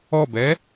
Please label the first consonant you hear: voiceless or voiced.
voiced